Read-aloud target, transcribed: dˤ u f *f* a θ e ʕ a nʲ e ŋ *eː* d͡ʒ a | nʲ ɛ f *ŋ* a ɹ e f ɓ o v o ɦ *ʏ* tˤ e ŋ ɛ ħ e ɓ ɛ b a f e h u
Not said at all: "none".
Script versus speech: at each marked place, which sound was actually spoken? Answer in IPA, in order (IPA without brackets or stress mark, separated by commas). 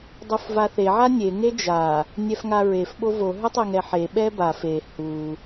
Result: v, e, ŋ, ʏ